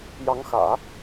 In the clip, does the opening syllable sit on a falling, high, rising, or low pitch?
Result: rising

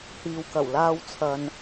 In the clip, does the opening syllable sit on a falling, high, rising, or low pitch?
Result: low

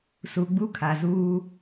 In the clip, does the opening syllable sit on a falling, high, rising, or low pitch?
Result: low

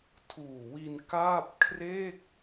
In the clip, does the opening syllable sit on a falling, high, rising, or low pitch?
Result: low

